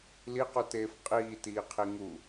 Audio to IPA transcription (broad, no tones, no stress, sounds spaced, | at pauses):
l i q u t eː f qʼ iː t iː qʰ i ŋ u